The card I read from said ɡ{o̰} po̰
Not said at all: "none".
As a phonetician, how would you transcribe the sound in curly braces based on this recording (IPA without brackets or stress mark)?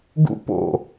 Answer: ṵ